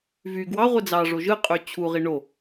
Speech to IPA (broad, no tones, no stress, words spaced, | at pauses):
vy ɡwɑʁʷe d͡zɑʐo ʒɯqʼy t͡ɕʰuʁi ɳo